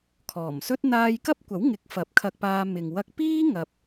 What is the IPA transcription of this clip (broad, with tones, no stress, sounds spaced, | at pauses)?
kʰ ɔː˨˩ m s ɵ˥ t̚ n̪ aː˧ j k ɐ˥ p̚ kʷ ɐ˨˥ w ŋ ɪ˨˥ k̚ f ɐ˨˥ p̚ kʰ ɐ˧ k̚ p aː˧ m ɪ˨ ŋ w ɐ˧ k̚ p iː˥ ŋ ɐ˧ p̚